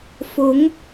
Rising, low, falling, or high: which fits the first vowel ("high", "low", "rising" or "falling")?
rising